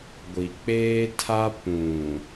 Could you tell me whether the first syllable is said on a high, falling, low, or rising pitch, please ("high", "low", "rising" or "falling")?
low